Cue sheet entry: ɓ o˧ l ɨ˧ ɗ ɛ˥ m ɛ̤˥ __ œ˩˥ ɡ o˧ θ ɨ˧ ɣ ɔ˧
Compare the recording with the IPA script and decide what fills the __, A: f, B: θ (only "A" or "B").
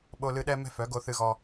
A